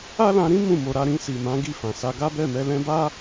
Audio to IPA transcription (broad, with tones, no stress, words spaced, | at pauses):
a˦lã˧ɾĩ˦ mũ˦˨mo˧ ɾa˧ɾĩ˧si˨mã˨˦ ɡi˦˨fã˨ sa˧ɡa˦bɛ˦˨mɛ˧ lɛ̃˧ba˦